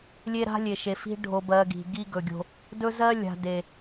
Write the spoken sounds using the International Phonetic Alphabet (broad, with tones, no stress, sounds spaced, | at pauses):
lʲ e˦ ɾ a̤˦ lʲ e˨ ʃ e˨ f i̤˦ ɖʱ o˨ b ɜ˨ ɡ i̤˨ ɡ i˦ ɡ ɵ˨ ɡʲ o̤˦ | d ɵ˦ z ɜ˦ lʲ a̤˨ d e˨